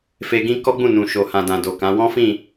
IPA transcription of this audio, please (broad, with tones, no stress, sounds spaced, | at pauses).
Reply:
f e˧ ɡ ĩ˦ k ɔ˦ ɡ͡b ũ˦˨ n ũ˨ ʃ o˨ h ã˨ d ã˨ d o˨ k ã˨˦ w ɔ̃˦ f ĩ˦˨